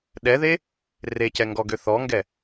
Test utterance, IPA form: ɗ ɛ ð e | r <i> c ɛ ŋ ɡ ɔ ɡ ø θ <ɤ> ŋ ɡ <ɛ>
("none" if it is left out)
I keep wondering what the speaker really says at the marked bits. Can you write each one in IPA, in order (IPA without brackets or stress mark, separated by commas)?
e, ɔ, ɛ